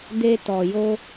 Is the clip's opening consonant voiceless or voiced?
voiced